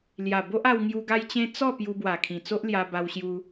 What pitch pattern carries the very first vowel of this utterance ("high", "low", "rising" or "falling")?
low